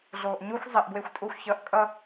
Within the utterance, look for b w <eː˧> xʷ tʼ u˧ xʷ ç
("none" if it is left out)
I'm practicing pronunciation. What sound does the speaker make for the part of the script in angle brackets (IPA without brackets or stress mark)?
e˧